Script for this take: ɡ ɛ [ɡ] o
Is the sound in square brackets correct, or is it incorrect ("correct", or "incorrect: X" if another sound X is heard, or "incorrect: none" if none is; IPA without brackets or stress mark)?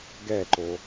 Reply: incorrect: ǃ